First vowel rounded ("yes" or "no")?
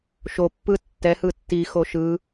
yes